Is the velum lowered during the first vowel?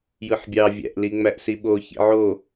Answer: no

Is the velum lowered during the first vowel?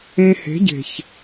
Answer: yes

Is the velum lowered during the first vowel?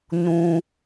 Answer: yes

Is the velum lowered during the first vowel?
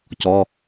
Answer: no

